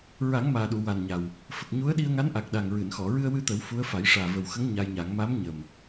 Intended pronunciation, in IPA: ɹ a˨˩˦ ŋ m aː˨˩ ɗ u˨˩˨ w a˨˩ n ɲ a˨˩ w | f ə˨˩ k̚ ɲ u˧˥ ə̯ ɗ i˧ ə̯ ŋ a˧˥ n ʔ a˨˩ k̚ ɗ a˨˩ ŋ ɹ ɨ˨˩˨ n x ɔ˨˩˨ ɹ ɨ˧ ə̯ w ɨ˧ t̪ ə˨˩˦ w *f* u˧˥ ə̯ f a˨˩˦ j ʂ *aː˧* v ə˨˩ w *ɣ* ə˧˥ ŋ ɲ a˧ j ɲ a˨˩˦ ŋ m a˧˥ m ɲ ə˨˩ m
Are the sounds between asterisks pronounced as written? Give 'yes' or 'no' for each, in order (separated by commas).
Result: yes, no, no